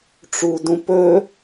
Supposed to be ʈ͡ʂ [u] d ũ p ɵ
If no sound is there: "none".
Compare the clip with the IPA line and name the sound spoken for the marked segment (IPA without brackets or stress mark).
u